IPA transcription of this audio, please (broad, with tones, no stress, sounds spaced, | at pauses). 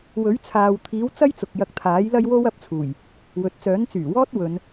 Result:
w ɵ˨˥ ɥ t͡sʰ aː˨ w t̪ʰ iː˨˥ w t͡s ɐ˥ j t͡s ʊ˨ k̚ j ɐ˧ k̚ t̪ʰ aː˨˥ j l ɐ˥ j w o˥ w ɐ˨˥ p̚ t͡sʰ uː˨˩ j | w ɵ˨ t̚ t͡s œː˨˥ n t͡s yː˨˩ w ɔː˥ t̚ w ɵ˨˧ n